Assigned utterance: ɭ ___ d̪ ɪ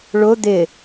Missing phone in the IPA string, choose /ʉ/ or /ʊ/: ʊ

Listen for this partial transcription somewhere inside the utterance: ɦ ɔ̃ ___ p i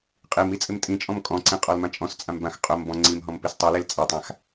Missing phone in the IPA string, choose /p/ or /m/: m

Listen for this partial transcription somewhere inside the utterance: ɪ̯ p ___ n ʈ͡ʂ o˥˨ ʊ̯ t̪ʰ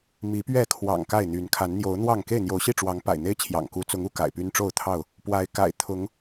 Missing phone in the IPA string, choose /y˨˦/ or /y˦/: y˦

